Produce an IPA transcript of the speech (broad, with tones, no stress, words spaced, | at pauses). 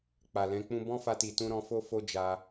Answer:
k͡pa˨lɛ̃˨˦k͡pũ˦ bɔ̃˦fa˧ ti˨tũ˧ ɾɔ̃˧fo˦ fo˦d͡ʒa˧